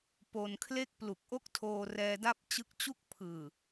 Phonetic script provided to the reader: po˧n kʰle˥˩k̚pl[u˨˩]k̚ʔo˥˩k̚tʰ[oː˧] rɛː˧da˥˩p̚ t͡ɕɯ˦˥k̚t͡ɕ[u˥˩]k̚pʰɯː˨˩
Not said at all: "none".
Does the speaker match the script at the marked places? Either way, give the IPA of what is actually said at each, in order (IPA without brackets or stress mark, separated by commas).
u˨˩, oː˧, u˥˩